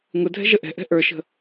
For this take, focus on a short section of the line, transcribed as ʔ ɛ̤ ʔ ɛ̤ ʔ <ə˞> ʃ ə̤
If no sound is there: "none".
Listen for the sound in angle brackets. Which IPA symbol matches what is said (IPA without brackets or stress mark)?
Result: ə˞